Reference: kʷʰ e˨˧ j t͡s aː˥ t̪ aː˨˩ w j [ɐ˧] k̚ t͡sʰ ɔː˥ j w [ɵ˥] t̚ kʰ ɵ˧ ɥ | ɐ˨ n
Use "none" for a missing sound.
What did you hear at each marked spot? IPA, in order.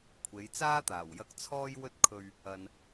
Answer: ɐ˧, ɵ˥

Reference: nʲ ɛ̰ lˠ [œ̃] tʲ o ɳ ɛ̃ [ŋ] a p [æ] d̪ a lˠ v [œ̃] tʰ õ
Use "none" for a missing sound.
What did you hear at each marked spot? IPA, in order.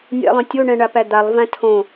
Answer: œ̃, ɳ, æ, æ̃

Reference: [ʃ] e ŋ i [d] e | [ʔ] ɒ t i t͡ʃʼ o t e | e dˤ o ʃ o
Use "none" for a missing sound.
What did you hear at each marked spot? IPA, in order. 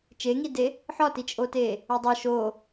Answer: t͡ʃ, d, ħ

